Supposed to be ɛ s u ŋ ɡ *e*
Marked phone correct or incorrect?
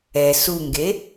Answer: correct